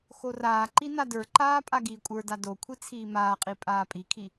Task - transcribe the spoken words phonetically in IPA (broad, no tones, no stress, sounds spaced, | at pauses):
x o r aː ǃ i n a d ə˞ ǃ aː pʼ a ɡ iː kʷʼ ə˞ d a d o kʷʰ i t͡sʰ iː m aː qʼ i pʼ aː pʼ i kʰ i